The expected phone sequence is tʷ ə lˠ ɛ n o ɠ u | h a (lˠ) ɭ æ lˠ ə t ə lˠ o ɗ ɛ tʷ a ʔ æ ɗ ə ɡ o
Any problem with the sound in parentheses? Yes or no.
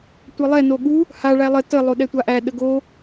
yes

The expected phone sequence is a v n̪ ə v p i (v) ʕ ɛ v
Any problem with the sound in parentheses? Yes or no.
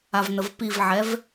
no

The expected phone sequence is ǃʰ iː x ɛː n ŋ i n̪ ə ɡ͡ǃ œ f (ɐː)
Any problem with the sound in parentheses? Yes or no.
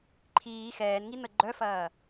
no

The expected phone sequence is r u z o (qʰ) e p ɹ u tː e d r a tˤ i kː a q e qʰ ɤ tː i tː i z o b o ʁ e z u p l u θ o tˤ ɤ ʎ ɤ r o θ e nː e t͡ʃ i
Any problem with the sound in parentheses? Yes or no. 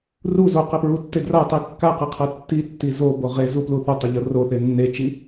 yes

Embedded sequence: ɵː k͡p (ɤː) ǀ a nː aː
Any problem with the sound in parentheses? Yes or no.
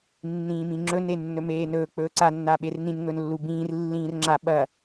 yes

